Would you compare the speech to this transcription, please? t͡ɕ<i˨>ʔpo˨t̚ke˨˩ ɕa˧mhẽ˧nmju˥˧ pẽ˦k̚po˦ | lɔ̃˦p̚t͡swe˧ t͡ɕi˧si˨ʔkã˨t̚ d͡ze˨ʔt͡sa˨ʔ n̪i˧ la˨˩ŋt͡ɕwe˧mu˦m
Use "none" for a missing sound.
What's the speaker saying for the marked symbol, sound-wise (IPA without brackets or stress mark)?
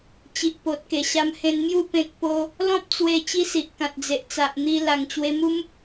i˨